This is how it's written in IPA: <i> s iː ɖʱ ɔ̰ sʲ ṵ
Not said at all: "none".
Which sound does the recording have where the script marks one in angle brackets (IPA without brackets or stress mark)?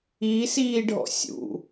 i